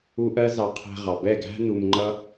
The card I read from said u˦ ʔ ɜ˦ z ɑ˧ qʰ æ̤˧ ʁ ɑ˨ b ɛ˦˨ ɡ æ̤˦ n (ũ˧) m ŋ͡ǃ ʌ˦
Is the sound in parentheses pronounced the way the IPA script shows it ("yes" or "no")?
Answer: no